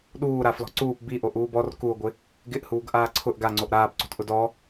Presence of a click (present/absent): present